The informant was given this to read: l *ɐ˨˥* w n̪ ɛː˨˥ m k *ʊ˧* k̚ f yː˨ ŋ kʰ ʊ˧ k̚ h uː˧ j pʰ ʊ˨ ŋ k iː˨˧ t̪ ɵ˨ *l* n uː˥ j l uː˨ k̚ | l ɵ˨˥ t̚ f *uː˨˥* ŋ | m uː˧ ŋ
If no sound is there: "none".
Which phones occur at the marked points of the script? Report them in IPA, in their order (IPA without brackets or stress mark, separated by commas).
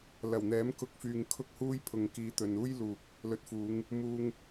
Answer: ɐ˨˩, ʊ˧, none, uː˨˧